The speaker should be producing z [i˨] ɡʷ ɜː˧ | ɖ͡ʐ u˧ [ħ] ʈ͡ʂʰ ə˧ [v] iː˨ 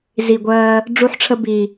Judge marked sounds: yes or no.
yes, yes, no

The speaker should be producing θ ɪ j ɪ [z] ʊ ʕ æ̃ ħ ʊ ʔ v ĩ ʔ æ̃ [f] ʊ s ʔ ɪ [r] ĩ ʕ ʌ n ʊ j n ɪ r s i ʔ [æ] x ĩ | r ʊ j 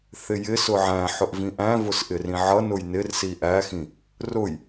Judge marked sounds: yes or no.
no, no, yes, yes

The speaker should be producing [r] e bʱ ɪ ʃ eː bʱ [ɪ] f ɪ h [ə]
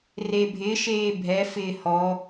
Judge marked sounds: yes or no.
yes, no, no

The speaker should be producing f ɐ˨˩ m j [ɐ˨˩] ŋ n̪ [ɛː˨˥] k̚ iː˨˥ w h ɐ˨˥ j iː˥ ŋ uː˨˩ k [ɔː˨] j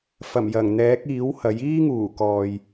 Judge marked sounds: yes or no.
yes, yes, yes

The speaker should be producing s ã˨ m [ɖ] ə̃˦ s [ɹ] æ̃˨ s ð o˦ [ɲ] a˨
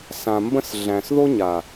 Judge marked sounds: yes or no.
no, no, yes

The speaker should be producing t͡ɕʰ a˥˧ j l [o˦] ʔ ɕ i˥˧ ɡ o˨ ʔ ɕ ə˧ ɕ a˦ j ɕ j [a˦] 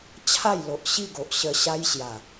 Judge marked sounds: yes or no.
no, no

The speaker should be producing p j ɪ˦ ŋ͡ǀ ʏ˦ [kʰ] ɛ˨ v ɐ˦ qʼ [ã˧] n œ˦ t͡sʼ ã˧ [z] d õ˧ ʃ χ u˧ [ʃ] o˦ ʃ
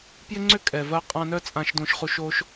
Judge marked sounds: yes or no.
no, yes, no, yes

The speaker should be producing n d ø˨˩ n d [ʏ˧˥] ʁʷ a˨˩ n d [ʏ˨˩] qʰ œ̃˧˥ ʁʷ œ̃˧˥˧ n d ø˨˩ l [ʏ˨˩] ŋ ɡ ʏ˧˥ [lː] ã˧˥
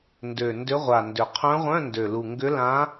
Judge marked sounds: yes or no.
yes, yes, no, no

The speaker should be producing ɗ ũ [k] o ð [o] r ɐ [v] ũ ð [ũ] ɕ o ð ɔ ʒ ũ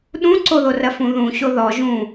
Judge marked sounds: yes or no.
no, yes, no, yes

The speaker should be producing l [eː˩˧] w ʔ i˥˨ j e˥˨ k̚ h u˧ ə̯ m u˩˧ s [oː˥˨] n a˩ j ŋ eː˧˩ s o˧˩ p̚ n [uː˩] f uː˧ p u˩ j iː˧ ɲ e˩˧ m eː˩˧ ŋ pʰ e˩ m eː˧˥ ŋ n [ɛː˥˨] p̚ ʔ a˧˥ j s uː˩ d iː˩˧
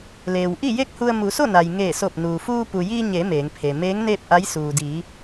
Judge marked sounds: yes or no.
no, no, yes, no

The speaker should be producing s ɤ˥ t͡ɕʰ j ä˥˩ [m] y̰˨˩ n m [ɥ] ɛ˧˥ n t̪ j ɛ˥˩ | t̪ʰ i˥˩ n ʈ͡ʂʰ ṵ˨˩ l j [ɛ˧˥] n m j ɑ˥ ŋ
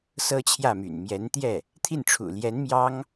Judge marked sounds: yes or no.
yes, no, yes

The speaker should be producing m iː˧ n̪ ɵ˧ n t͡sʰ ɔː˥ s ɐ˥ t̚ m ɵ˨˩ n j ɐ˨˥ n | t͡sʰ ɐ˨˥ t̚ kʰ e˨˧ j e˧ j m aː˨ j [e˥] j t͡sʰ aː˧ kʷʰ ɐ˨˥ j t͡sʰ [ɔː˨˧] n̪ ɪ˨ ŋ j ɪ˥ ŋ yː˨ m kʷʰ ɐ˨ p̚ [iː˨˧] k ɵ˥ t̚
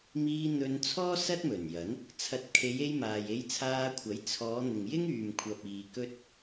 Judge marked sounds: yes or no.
no, yes, no

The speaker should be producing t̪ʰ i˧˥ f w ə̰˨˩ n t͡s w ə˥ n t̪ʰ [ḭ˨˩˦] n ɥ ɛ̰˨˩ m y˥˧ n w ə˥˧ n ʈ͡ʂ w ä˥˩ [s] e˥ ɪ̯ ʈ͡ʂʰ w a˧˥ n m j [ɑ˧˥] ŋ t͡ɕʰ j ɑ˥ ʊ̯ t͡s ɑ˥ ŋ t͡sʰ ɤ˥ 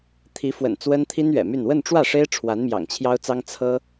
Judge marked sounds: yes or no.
no, no, no

